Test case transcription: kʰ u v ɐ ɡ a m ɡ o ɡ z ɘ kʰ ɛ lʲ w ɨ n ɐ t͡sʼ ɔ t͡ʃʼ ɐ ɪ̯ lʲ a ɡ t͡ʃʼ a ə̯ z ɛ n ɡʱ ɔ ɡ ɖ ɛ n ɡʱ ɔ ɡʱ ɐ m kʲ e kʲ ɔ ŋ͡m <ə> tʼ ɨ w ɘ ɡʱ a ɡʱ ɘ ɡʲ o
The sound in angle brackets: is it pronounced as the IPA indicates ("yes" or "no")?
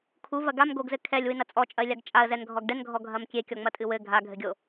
no